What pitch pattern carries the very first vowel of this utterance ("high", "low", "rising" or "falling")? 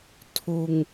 low